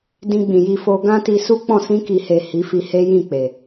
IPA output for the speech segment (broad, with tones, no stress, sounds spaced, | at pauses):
d ĩ˧ ɡ͡b ĩ˨ j i˧ f o˧ ɡ ã˦ t i˧ s u˦ k͡p ɔ̃˦˨ s ĩ˧ k i˨ h e˨ h i˨˦ f i˧ h e˦ j ĩ˦˨ k͡p e˨